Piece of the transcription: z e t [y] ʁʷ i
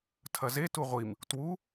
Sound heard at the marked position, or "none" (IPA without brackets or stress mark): u